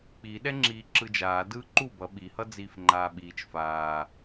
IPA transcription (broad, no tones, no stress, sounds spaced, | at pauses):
k͡p i ɗ ɛ ŋ͡ǁ iː ǁ ɯ d͡ʒ aː d ɯː ǃ u b ʌ ɓ i h ʌ d͡z iː f ŋ͡ǃ aː ɓ iː t͡ʃ f aː